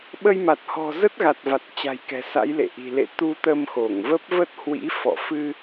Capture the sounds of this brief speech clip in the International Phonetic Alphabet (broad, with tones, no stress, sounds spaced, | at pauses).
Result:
ɓ ə˧ j m a˨˩ t̚ h ɔ̤˨˩ z ə˦˥ t̚ ɣ a˨˩ t̚ v a˨˩ t̚ t͡ɕ a̤˨˩ j k ɛ̤˨˩ s a̰˧˥ j l ḛ˧˨ ʔ i̤˨˩ l ḛ˧˨ t̪ u˧ t̪ ə˧ m x o˧˩ ŋ v ə˦˥ p̚ v ə˦˥ t̚ h w ḭ˧˥ f ɔ̰˧˨ f ɨ˧